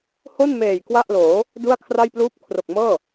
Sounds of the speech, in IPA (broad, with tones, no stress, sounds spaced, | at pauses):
h o˥˩ n m eː˨˩ j k w a˥˩ ʔ l oː˩˦ | d u˥˩ a̯ kʰ r a˥˩ j p l uː˥˩ p̚ kʰ r o˨˩ k̚ m ɤː˥˩